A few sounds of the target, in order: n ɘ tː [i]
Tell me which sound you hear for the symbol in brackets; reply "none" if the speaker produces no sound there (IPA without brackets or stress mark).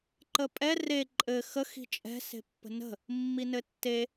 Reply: e